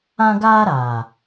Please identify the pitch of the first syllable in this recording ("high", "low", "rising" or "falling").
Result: high